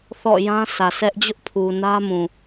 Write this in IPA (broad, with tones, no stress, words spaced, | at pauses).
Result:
θɔ̰˦˨jã˦sä˨ sʰɛ˦ʔ d͡ʑʊ˦ʔpʰu˨nä˦mũ˨